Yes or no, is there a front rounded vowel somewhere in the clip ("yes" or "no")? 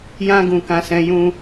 no